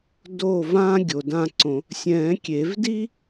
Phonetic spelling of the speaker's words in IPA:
d oː˥˩ v ãː˥ ɡʲ o˩ d ã˥˩ ǀ õ˨˩˦ | sʲ ɛ̃ː˨˩˦ kʲ e˨˩˦ v d i˥

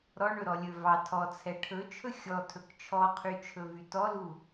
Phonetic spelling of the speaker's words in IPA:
ɾ ɔ ɳ ɵ ɾ ɔ lʲ ɵ v ɑ tʰ ɔ t͡sʰ ɛ ʈʰ ɵ t͡ʃʰ ɵ xʲ ɔ tʰ ɵ k t͡ʃʰ ɔ qʰ y t͡ʃʰ ɵ v y t ɔ l u

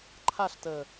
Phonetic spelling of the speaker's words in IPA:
ǃʰ a ɬ t əː

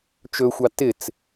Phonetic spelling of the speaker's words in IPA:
t͡ʃ ɵ xʷ ɑ t ɪ t͡s

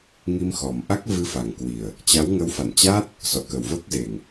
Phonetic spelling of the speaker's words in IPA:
ŋ i˧ m x ɔ˨˩ m ʔ a˦˥ k̚ v ɨ˧ f a˨˩ ŋ k w i˨˩ ə̯ | t͡ɕ a˨˦ w ŋ ə˨˦ w f a̰˧˨ n t͡ɕ aː˦˥ t̚ | s ɔ̰˧˨ k ə˨˩ w v əː˦˥ k̚ z e˨˩ ŋ

